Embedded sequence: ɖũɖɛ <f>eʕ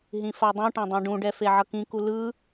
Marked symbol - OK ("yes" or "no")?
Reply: yes